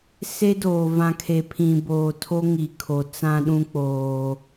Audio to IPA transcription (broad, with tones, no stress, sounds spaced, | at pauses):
s e˦ d oː˨ v ã˨ kʰ e˨ pʰ ĩ˨ b oː˨ tʰ o˦ ŋ i˨ kʰ o˨ t͡s ã˦ ɗ ũ˦ k͡p oː˦